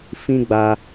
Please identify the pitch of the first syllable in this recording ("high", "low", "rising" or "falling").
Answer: high